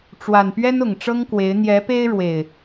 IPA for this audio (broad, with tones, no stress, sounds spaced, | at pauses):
ʈ͡ʂ w a˨˩ n p ɥ ɛ˦ n ʊ˨˩ ŋ ʈ͡ʂ ɤ˦ ŋ k w e˨˦ ɪ̯ n̪ j ɛ˨˦ p e˦ ɪ̯ ɻ w e˨˩ ɪ̯